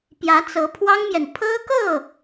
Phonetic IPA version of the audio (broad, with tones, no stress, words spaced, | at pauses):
pjä˧˥t͡sɤ˧˥pʰwɑ˥ŋmjɛ˨n pʰɤ˥kɤ˥˩